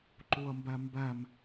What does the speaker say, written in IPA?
ǃuɐ̯mbæmbæm

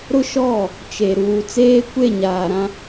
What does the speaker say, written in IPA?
ɾʊ˦ʃɔ˦˨ | t͡ʃe˨ ɾuː˨ t͡seː˦kʷe˦˨ɲaː˨ɾã˦

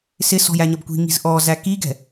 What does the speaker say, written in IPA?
sɪsɔ̤j æɲʌbkʷi̤ŋi̤z ʔɔzæ kiɡɛ̤

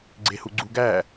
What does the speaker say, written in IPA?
ɡ͡ǀehuɡ͡ǀuɡæ

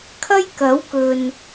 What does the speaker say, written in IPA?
kʰɐ˥jkɐ˨˥wkɵ˨n

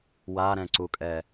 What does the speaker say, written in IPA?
waɾɛ̃ǀukʼɛ

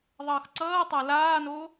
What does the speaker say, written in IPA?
ðˤʌːxǀʌː tˤalaːno

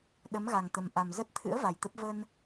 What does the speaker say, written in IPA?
ɗə˨˦mɣa˨˩ŋt̪ə˨˩m ʔa˨˩mzə˦˥t̚ t̪ʰɨ̰˧˥ə̯ va˨˩jt̪ə˦˥p̚ və˧n

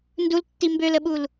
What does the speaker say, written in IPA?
ndultːi mbøləɓul

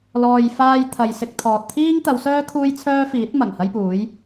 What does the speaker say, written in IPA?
lɔː˨jfaː˧j t̪ʰɐ˨jsɪ˧k̚t̪ʰɔː˨t̚ t̪ʰiː˥ŋt̪ɐ˨˧wsœː˥ kʰuː˥jt͡sʰœː˥fiː˨˥t̚ mɐ˨˩ŋhɐ˥jpuː˨˥j

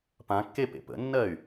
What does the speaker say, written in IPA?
pãkːe pḛpə̰nːɜy̯

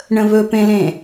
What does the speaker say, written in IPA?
ɳə̃βɵpẽlẽ

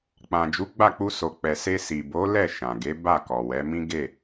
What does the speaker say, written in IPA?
k͡pã˨d͡ʒu˨˦ɡ͡ba˦˨k͡pu˧ so˨k͡pɛ˨se˧ si˨bo˨˦lɛ˦˨ ʃã˨ɡe˨˦ba˦˨ kɔ˨wɛ˨˦ mĩ˦ ɡe˦˨

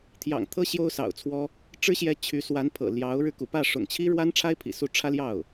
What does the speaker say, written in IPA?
t̪ʰjɑ̰˨˩ŋt̪ʰɤ˥ ɕjo˥ʊ̯sɑ̰˨˩ʊ̯t͡sʰwɔ˥ | ʈ͡ʂɻ̩˥ɕjɛ˧˥ t͡ɕʰy˧˥ swa˧˥npʰɤ̰˨˩ ljɑ˧˥ʊ̯ɻɻ̩˧ kṵ˨˩pä˥˩ʂʊ̰˨˩ŋt͡ɕʰi˥ ɻwa˥nʈ͡ʂʰa˥ɪ̯ pʰḭ˨˩su˥˩ ʈ͡ʂʰä˥ljɑ˥˩ʊ̯

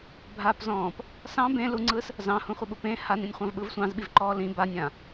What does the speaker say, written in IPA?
bʱapzɔ̃ːp | sɑ̃ bẽ luŋ͡ǀɯs | zɑ̃hũχʷəɓu pẽ hanĩnʲχʷɑ̃vɓɯv sʷɑ̃zɓivǃɔː lĩ banʲã

